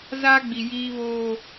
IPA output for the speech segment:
z a˦ ɡ͡b i˨ j iː˦ β oː˦

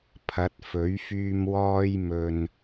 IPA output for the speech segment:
pʰ ɐ˨˥ t̚ f ɵ˨˥ ɥ f yː˧ m w ɔː˧ j m ɵ˨ n

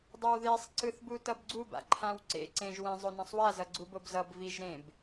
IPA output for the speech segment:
dˤ o w ð e sˤ ǀ ɯ θ b u t ʌ b ɡ͡ǀ u b a̰ ǃʰ ã w ǀ ḛ ǀ ẽ ʒ w ɛ̃ zˤ o n ã sˤ w a z ʌ ɡ͡ǀ u b o b z ʌ b v i ʒ ɾ ẽ b

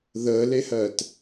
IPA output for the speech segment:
ð əː l e h ɜː t

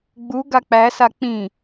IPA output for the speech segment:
ɡ͡b u ɡ a k͡p æ s a k͡p ĩ

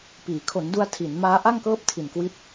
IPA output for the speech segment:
p iː˩˦ kʰ o˩˦ n d u˧ a̯ tʰ i˩˦ n m aː˦˥ ʔ a˥˩ ŋ k ɤː˥˩ p̚ tʰ i˨˩ n k w i˦˥ t̚

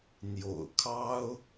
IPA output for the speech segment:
n̪ j o̰˨˩ ʊ̯ kʰ ɑ˦ ʊ̯

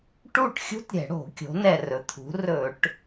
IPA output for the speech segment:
ʈ u˥˩ ʈ xʲ ṳ˥ t ɾʲ ɛ̤˧˩˧ ɽ o̤˧˩˧ kʲ o̤˩˧ n ɛ˨˩ r ɵ˩˧ t̪ʰ ṳ˩˧ r ɵ˧˩˧ ʈ

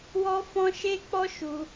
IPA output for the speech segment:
w ɔ˦ f ɔ̃˦ ʃ e˦ k͡p ɔ˦ ʃ u˧

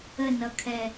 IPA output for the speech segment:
ə n ʌ kʰ ɛ

